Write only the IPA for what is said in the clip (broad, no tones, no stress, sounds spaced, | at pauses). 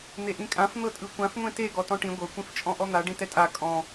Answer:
n̪ e ʔ ĩ kʼ ã f n̪ ɤ tʼ ɯ kʷ ã f ŋʷ ẽ t e ɡ ɔ t ɔ̃ ʈ ĩ ɡʷ ɤ kʷ ĩ f t͡ʃʼ ɔ̃ ʔ ɔ n̪ a ɖ ĩ t ɛ tʼ a kʼ ɔ̃